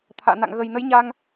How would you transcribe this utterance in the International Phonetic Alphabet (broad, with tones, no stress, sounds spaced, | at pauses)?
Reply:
t̪ʰ a̰ː˧˨ n a̰˧˨ ŋ ɣ ə˨˩ j n ə˨˦ j ɲ a˧ ŋ